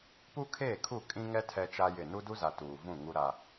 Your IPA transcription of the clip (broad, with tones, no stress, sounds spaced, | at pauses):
p u˦ kʰ eː˦˨ kʰ u˦˨ kʼ ĩ˦ ŋ ɛ˦ tʰ ɛ˦ t͡ʃ a˦ j ɪ˦˨ n u˦ d u˦ z a˨ t uː˨ v ũ˦˨ ŋ u˦ ɾ a˦